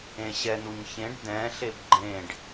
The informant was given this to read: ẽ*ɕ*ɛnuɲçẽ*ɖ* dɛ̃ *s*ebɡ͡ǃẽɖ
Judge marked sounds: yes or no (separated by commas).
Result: yes, yes, no